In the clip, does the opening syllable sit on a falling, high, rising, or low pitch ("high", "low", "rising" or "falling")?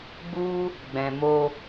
high